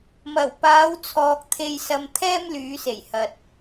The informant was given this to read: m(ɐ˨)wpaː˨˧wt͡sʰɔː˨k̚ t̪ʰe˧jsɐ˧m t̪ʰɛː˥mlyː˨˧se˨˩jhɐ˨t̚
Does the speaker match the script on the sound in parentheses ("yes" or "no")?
no